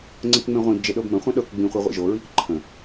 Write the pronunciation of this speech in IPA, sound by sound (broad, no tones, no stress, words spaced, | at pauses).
ŋ͡ǀə̃kŋ͡mẽʁʷĩbd͡ʒe ɗɤbmə̃χʷɐ̃ ɗɤk ɡ͡bĩχʷi ʁʷḭʒoɹik ǃʰə̃